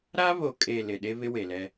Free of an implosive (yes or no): no